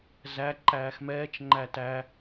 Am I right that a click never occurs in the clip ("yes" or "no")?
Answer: no